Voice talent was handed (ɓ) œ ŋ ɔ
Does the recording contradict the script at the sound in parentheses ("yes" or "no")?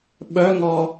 no